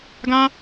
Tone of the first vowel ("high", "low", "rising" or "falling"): high